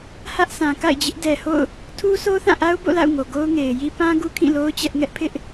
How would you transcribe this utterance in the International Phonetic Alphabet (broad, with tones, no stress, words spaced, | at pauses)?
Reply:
hä˦ʔsʰã˨ ka̰˦˨ɪ̯d͡ʑɪ˦ʔdɛ˨ho̰˦˨ʊ̯ | tʰu˦sʰo˦ θã˦˨ʔa˦ʊ̯bo̰˦˨la̰˦˨ʊ̯ ŋo˨ɡo˦ʊ̯ŋe˨ɪ̯ji˦ pã˦ ɡu˦kʰĩ˦˨lo˦ʊ̯ t͡ɕɛ˦ʔŋɛ˦ʔ pʰɪ˦ʔ